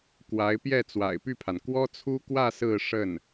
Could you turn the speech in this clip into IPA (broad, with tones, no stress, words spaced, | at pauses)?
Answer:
kwa˧˥ɪ̯pjɛ˥˩ t͡swa̰˨˩ɪ̯py˥˩pʰa˩n kwɔ˥t͡sʰu˥kwä˥˧ sɹ̩˥˧ ʂə˥˩n